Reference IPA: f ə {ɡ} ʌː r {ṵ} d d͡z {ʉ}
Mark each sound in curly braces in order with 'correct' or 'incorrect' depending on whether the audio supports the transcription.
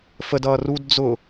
incorrect: d, incorrect: u, incorrect: ʊ

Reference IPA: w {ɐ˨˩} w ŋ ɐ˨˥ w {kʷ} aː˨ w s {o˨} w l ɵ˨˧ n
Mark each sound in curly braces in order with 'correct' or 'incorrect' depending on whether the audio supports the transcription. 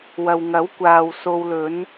incorrect: ɐ˨, correct, correct

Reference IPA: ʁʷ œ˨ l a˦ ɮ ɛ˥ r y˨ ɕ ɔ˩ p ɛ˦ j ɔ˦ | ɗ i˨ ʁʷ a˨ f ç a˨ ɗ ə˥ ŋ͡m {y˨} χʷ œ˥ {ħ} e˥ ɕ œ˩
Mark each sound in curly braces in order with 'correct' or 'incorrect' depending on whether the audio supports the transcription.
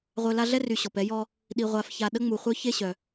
incorrect: u˨, incorrect: ç

